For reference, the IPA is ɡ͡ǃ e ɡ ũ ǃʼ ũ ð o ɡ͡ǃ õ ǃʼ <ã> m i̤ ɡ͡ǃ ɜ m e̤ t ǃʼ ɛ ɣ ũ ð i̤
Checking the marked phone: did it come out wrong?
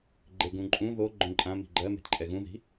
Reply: no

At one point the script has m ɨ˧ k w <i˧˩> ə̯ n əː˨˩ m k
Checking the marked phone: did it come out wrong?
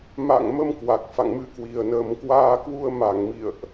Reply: yes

